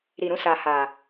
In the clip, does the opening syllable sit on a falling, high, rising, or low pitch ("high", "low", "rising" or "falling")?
low